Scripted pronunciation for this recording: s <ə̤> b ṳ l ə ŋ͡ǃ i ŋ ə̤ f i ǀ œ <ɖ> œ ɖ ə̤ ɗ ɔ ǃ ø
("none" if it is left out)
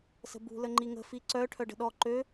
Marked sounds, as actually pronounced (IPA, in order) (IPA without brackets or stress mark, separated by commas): ə̤, ʈʰ